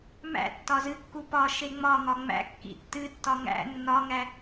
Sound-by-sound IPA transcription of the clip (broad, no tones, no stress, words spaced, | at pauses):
mæ̰ tːɒzɨkːu pɒ ʃeŋ͡mɒŋɒ ŋ͡mæ̰ kːḭtːɨtːɒ ŋæ̰ nːɒŋæ